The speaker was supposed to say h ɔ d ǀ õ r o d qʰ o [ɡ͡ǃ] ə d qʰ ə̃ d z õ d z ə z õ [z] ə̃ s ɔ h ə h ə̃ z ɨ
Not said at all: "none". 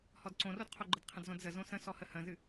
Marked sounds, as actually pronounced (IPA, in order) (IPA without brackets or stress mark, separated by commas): ɡ͡ǃ, s